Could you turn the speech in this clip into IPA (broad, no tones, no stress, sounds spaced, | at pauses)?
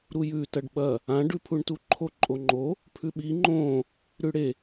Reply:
ɾ u j ʉ t ɐ ɖ ɓ ɐ | ã ɖ ʉ pʰ u ɳ t u ǃʰ o ǃʼ o ŋ͡ǃ o | pʰ ʉ ɓ i ŋ͡ǃ õ | ɾ ʉ ɽ e